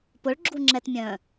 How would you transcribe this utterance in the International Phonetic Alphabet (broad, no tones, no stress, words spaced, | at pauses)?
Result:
pʊɭɡ͡ǁuŋ͡ǁɛtmʲœ̃ː